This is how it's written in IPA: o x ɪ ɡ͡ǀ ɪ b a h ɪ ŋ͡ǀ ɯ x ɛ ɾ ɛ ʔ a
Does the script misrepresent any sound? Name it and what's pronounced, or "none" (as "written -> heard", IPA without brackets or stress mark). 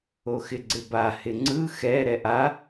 none